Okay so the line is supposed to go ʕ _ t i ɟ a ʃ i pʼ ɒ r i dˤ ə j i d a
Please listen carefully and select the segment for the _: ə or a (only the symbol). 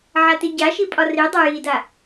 a